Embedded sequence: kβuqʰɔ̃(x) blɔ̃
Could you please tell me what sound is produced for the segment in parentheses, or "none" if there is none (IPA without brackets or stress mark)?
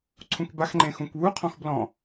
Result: x